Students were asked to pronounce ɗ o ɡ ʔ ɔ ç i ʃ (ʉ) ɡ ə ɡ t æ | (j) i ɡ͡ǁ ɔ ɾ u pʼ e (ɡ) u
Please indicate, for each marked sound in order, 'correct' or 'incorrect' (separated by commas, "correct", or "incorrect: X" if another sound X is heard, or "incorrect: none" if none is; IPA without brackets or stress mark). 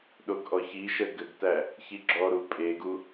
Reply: incorrect: ə, incorrect: ç, correct